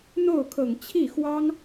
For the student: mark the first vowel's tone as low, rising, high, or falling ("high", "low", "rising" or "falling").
falling